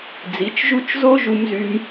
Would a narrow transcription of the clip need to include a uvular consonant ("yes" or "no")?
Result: no